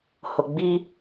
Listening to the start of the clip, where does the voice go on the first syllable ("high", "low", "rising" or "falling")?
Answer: low